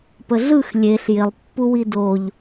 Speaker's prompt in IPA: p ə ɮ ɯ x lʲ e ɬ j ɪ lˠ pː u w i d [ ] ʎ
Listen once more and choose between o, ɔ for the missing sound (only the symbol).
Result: o